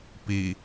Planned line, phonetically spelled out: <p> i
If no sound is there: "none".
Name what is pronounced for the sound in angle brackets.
p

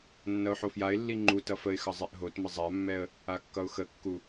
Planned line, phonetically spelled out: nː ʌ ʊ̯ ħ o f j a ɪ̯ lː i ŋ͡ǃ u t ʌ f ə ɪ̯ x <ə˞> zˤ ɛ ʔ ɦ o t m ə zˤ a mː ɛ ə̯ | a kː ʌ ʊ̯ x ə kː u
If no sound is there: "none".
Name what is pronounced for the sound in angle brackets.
ʌ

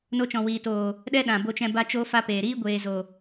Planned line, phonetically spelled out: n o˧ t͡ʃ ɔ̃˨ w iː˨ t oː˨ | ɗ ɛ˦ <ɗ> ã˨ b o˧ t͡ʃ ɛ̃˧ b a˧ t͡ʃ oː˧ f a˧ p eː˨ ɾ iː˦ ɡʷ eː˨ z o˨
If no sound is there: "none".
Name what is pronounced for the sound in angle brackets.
ɗ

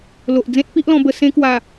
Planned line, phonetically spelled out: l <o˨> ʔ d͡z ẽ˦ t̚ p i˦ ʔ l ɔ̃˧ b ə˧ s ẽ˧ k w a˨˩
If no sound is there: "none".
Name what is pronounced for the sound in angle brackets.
o˨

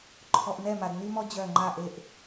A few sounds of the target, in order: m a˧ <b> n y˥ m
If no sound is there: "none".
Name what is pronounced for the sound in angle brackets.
d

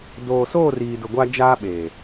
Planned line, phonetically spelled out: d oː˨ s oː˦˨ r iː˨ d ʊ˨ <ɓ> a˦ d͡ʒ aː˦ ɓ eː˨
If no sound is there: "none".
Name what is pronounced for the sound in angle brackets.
ɡʷ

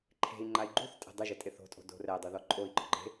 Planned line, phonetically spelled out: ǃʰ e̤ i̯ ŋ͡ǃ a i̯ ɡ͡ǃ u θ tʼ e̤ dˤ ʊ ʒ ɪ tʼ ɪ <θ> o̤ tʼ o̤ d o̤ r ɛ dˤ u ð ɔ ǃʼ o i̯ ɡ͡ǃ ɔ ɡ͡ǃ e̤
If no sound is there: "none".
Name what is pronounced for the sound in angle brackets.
θ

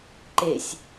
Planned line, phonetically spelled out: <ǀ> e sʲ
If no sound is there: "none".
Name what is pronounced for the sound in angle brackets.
ǃ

